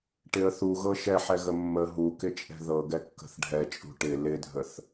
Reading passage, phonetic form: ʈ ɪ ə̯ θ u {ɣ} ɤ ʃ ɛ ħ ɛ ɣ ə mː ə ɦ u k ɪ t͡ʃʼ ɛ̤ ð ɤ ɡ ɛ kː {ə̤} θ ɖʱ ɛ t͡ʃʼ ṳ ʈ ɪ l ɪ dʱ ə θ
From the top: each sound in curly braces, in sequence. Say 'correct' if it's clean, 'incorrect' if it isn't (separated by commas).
correct, correct